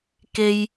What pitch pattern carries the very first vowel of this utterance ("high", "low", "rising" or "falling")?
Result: high